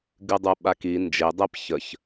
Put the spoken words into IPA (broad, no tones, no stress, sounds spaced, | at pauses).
ɡ ɨ dˤ u ɓ a k i n d͡ʒ e dˤ e p ç ə ç